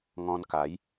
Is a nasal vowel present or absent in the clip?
present